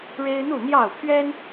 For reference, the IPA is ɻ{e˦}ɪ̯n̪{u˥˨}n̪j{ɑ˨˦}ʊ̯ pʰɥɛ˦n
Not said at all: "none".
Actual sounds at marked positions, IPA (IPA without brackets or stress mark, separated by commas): e˦, u˥˨, ɑ˥˨